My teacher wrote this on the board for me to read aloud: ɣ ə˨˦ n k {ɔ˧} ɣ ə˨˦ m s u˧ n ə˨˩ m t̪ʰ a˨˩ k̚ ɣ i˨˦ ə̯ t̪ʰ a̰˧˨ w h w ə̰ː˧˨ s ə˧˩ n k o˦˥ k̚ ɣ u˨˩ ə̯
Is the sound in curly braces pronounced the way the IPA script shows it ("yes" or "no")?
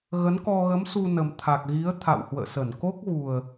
yes